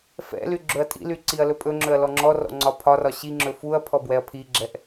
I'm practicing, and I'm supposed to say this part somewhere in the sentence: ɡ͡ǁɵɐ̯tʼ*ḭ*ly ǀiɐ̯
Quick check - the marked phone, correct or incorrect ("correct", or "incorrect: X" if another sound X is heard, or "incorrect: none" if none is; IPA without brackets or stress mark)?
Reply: correct